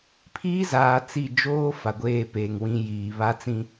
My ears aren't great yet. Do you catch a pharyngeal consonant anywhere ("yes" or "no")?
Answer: no